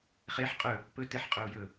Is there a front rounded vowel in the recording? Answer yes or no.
no